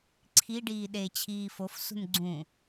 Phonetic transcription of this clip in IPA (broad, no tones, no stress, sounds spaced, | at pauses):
ǀʰ i ɖ iː ɗ e t͡ɕʰ iː f o f s ṳ n ɡ͡ǀ ũ